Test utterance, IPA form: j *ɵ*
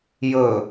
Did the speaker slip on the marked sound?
no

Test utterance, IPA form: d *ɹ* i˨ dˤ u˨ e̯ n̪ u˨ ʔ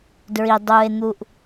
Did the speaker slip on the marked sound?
no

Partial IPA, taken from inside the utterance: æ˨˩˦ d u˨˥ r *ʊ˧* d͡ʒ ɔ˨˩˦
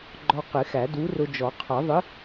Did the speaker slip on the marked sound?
no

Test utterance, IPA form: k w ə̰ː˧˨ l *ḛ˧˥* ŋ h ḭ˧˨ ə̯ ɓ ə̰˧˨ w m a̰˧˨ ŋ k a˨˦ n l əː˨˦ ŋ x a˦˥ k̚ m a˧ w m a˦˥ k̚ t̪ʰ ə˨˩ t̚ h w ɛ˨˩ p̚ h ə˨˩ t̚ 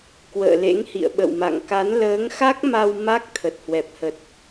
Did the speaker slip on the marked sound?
no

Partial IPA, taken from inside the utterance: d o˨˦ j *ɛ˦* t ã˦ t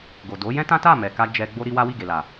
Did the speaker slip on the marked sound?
yes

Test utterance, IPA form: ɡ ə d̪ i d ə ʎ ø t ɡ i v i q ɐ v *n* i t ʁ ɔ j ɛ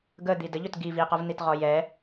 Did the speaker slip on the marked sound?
no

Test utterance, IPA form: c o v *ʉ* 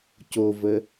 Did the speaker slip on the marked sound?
yes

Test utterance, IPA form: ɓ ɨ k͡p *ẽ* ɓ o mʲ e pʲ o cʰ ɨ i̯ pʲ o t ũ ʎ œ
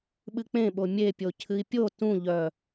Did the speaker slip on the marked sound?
no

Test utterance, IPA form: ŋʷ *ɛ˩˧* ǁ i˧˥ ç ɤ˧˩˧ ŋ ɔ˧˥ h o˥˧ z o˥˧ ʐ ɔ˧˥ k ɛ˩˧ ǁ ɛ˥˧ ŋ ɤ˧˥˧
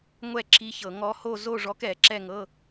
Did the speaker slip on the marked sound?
yes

